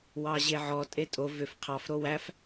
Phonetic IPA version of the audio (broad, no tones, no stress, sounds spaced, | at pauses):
w ɑ ʑ e ʕ ɔ tʼ e tʼ o v ʏ f qʰ ɑ f ɾ o w æ f